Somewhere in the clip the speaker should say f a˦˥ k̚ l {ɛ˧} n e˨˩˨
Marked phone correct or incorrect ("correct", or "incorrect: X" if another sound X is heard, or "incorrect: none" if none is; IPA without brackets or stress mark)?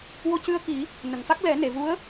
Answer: incorrect: ɛ˨˩˦